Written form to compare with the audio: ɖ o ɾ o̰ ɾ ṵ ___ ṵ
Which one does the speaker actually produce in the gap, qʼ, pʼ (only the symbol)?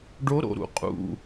qʼ